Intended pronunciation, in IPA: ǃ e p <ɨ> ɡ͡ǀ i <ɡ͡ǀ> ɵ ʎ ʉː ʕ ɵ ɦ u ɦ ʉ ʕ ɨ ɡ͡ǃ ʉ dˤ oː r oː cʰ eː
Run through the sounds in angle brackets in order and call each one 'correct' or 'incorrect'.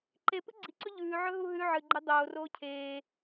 correct, incorrect: ǀ

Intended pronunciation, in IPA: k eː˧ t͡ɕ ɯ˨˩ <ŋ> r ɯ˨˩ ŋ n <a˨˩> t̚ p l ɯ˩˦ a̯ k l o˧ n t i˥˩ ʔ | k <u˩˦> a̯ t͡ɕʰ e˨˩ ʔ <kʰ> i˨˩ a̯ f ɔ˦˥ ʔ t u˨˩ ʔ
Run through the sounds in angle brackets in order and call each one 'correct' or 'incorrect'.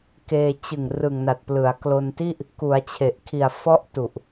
correct, correct, correct, correct

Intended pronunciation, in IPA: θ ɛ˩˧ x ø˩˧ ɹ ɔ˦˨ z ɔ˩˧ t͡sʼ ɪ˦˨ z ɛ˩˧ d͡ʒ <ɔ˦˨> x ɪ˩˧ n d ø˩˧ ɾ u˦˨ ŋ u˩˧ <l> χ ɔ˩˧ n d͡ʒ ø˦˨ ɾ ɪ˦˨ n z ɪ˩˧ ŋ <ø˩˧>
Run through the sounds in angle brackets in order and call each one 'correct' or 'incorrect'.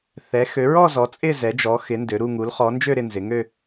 incorrect: ɔ˩˧, correct, incorrect: ø˦˨

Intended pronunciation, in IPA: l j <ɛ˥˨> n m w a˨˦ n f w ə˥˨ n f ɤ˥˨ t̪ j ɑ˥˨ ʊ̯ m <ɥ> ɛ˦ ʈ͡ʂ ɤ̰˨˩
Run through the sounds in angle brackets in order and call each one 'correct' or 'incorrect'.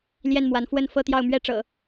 correct, correct

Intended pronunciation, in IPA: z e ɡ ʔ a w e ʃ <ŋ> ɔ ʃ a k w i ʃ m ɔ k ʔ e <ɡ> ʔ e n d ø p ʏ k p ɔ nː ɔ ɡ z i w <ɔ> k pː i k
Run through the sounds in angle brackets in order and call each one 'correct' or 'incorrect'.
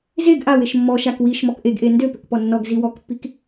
incorrect: mː, correct, correct

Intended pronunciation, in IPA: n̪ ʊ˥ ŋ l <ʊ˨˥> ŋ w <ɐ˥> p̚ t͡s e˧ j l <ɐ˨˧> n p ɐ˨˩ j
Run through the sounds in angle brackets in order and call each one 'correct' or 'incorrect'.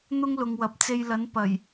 incorrect: ʊ˨, incorrect: ɐ˨, incorrect: ɐ˨˥

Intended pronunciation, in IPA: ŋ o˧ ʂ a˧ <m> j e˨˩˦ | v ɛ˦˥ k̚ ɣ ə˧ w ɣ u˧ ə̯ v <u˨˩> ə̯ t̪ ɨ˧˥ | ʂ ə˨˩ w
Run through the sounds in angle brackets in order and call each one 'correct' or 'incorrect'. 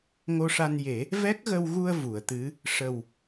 incorrect: n, incorrect: u˨˩˨

